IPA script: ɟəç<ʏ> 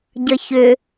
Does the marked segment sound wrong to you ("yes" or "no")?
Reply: no